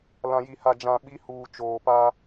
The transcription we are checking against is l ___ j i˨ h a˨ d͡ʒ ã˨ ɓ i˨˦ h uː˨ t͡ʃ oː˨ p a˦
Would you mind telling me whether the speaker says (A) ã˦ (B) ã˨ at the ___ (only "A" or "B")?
B